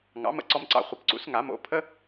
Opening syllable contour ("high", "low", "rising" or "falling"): rising